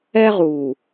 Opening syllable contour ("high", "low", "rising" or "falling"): high